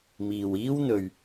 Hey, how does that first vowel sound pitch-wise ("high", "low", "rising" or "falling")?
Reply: low